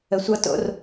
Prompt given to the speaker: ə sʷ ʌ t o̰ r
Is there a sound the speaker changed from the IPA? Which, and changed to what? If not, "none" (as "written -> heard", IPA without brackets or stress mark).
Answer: none